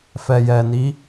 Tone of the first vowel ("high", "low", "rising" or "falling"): low